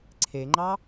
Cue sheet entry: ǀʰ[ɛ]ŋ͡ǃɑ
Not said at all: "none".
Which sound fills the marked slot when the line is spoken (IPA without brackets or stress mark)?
e